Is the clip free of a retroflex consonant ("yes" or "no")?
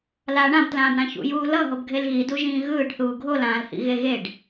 no